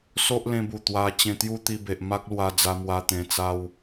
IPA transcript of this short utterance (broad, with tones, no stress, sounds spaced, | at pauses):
s o˦ ʔ l ẽ˧ b u˨˩ t̪ w a˧ t͡ɕ ẽ˧ t̪ j u˦ t̪ i˧ b e˨ ʔ m a˦ k̚ l w a˧ d͡z a˧ m w a˧ t̪ ẽ˧ t͡s a˦ w